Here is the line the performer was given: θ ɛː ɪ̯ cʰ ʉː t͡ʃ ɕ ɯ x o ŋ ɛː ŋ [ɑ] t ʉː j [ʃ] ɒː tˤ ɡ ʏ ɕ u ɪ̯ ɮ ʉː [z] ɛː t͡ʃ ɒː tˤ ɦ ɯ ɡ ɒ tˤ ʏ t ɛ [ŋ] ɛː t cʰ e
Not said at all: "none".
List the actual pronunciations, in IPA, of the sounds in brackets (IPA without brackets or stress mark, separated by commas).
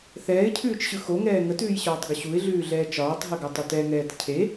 ə, ɕ, ɮ, ŋ